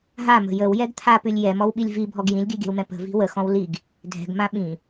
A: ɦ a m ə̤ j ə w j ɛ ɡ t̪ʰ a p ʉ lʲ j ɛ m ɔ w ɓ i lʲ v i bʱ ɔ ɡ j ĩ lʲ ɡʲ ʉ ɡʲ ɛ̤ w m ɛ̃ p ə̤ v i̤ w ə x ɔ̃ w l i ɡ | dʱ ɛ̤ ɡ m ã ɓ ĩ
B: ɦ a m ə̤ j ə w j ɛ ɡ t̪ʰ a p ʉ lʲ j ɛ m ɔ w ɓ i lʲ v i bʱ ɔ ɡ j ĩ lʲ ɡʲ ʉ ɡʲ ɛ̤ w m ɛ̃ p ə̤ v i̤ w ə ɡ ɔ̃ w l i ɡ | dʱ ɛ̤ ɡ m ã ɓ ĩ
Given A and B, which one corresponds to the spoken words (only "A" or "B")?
A